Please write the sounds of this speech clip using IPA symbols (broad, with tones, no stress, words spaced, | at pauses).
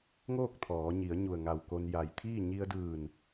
ŋoː˥˨k̚t̪ʰɔː˩˧ɲi˩˧ə̯ ɲu˧˩ə̯ŋa˧˩wko˧n ja˧˩j t̪ʰiː˥˨ ɲi˧ə̯dɯː˧˩n